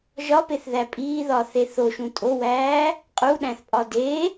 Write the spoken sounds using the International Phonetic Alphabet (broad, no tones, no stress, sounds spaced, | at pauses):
ʒ ɒ p e θ ð æ pʼ iː ð ɒː θ e θ o ʃ ũ tʼ o w æː | qʼ u ɗ æ̃ θ pʼ ɒ d e